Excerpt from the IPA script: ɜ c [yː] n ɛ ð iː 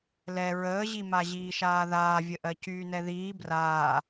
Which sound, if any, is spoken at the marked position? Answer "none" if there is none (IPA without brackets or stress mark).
yː